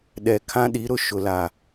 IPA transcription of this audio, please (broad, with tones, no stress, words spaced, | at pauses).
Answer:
ɗɛ˨kʰã˦ɗi˨˦ ɾʊ˨ʃʊ˨ la˨